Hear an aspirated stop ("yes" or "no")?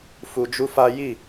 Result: no